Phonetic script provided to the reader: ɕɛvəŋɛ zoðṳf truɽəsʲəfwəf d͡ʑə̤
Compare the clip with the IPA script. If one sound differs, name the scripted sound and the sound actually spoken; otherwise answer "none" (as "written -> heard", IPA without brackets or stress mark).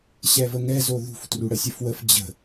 none